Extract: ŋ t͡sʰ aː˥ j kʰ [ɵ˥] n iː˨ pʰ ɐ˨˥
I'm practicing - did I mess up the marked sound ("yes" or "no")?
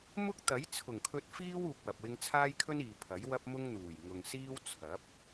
no